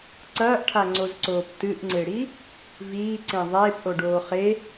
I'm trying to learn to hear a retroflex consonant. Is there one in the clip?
yes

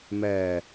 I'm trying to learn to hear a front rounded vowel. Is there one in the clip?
no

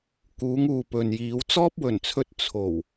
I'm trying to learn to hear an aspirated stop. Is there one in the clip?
yes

